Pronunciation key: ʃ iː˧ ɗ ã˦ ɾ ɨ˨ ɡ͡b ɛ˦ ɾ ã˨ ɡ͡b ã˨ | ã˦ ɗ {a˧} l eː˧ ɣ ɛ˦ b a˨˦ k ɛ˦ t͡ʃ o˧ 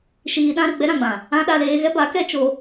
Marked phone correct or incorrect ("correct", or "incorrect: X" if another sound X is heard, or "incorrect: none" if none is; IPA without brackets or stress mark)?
correct